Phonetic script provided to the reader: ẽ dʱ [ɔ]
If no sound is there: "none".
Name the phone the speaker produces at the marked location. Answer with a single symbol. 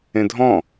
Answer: ɔ̃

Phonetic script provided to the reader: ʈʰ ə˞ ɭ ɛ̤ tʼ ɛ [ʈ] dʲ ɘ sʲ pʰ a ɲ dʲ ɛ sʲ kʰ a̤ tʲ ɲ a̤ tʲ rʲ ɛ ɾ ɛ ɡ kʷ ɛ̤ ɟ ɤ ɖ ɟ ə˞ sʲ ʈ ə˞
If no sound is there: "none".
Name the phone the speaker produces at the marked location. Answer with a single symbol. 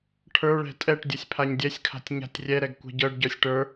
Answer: ʈ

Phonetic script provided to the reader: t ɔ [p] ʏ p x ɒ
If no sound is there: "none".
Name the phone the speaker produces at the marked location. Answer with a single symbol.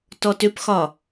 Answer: t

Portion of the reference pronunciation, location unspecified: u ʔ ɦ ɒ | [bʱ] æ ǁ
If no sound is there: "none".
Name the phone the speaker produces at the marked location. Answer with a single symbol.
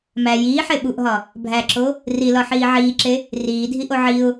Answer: bʱ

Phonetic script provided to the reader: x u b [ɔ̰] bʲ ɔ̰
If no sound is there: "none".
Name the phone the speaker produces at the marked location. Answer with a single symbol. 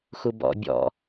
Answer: ɔ̰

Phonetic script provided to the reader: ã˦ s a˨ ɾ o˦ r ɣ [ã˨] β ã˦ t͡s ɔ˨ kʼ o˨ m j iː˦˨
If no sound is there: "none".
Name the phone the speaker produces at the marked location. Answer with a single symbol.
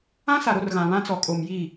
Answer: ã˨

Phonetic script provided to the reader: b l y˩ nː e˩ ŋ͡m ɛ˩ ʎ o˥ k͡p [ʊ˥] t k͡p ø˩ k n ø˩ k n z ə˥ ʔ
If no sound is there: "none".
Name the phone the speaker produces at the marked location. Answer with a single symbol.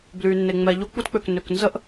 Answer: u˥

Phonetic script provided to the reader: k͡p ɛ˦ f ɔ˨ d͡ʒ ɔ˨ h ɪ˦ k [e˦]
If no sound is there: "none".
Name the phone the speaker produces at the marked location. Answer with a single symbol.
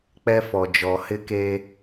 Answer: e˦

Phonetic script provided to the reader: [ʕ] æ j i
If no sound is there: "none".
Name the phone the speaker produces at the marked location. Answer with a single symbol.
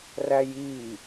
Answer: r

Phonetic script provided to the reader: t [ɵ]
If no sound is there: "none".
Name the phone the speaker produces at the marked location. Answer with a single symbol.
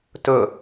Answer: ɵ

